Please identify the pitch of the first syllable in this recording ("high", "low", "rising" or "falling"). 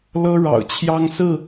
high